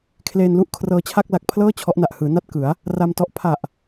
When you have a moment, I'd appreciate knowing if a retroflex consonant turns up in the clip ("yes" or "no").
no